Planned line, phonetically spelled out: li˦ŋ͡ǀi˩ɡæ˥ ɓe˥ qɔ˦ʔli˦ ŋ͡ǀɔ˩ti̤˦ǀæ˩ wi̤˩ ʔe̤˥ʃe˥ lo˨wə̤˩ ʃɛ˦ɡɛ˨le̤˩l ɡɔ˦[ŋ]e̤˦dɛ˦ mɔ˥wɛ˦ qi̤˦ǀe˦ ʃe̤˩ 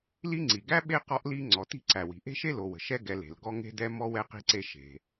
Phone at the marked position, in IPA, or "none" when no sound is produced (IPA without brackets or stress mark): ŋ